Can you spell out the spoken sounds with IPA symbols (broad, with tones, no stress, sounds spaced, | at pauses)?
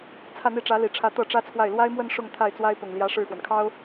t͡sʰ ä˥˧ n̪ i˥˩ ʈ͡ʂ ä˧˥ l i˨˩ ʈ͡ʂʰ ä˧˥ t̪ ɤ˥˩ ʈ͡ʂ ä˥ t͡sʰ w a˥˩ ɪ̯ l w a˥ ɪ̯ m w ə˥˧ n ʂ ʊ˥˧ ŋ t̪ʰ a˥˩ ɪ̯ t͡s w a˥ ɪ̯ p ʊ˨˩ ŋ l j ä˧˥ ʂ ɻ̩˥˩ x w ə˩ n kʰ ɑ˥ ʊ̯